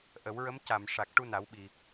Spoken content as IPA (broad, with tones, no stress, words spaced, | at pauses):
ʔə˨˩˦wɹə˧˥m ca˨˩˨m ʂa˨˩k̚ ʈu˧na˨˩˦wɓi˨˩